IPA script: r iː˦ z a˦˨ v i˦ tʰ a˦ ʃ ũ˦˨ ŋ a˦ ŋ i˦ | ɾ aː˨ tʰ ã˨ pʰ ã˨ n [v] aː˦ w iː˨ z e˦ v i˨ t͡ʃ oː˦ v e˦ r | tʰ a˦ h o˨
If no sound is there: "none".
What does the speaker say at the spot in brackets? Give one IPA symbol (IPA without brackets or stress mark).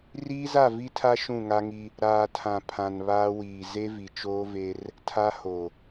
β